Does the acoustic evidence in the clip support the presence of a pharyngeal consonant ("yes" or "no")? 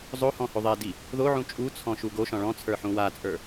yes